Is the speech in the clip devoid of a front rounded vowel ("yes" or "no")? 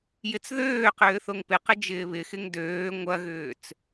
no